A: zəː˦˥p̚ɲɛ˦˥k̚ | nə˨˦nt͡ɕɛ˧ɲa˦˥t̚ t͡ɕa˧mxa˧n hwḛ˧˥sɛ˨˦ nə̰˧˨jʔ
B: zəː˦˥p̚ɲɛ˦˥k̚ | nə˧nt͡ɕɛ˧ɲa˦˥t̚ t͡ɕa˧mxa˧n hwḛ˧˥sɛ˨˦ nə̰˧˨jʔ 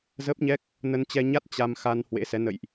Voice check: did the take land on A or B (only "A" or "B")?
B